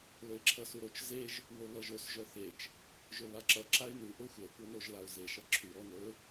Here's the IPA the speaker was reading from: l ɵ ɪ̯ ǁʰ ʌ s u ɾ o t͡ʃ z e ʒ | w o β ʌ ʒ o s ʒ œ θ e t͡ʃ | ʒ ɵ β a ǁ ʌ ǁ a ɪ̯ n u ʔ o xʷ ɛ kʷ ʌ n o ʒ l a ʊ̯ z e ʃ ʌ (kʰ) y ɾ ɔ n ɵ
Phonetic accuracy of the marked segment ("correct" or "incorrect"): incorrect